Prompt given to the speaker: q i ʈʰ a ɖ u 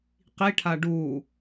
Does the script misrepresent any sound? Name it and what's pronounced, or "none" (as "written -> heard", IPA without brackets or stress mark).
none